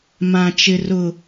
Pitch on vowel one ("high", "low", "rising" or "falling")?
high